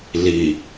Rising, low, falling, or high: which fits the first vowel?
low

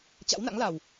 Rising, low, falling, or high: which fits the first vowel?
rising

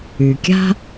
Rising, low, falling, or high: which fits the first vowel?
low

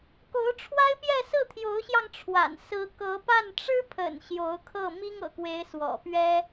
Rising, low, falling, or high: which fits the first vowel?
rising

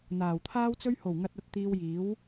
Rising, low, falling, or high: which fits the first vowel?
low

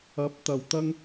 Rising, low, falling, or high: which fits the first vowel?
rising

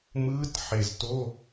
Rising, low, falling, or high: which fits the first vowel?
rising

